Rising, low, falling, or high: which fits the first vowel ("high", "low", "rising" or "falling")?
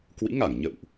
rising